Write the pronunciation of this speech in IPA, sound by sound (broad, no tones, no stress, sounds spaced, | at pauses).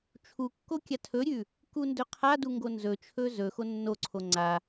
t͡ʃʰ u kː o kʲ a tʰ ɵ ɾʲ ʉ | k u n d ɵ qʰ a d u ŋ ɡ o n z ɵ t͡ʃʰ ɵ z ɵ x o nː o ǀʰ o ŋ͡ǀ a